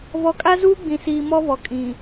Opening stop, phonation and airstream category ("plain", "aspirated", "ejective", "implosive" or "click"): ejective